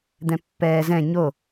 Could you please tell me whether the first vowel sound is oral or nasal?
nasal